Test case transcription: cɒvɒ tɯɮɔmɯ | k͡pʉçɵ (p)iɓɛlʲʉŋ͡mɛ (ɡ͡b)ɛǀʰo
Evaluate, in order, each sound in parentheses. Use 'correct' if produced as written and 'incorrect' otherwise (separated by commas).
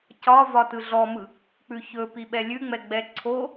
correct, correct